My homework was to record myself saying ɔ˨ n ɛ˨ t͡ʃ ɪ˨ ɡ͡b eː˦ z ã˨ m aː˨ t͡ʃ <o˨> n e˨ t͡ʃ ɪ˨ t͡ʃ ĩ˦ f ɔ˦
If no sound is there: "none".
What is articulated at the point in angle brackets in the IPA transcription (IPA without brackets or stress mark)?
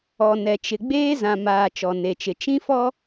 ɔ˨